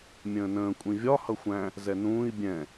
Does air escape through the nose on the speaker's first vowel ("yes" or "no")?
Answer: yes